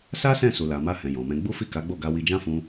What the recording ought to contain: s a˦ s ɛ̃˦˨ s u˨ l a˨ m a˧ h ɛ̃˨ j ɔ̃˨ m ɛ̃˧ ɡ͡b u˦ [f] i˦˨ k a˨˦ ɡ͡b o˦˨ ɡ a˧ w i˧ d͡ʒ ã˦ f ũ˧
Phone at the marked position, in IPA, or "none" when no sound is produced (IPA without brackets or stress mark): f